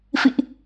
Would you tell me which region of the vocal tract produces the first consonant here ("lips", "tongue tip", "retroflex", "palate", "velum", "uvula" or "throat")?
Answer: lips